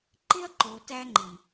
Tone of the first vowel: high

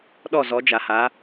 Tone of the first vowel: falling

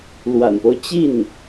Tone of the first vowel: low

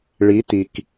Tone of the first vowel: rising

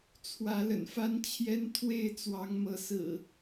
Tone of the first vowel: rising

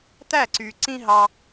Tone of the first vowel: falling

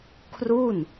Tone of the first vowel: falling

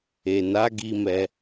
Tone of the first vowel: low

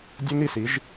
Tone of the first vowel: high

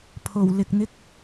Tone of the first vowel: low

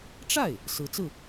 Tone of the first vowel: falling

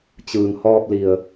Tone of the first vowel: low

